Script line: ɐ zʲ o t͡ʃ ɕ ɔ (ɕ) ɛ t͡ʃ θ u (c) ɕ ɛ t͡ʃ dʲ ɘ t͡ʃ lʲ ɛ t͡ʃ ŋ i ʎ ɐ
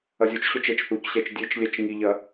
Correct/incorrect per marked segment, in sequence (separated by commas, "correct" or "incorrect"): incorrect, correct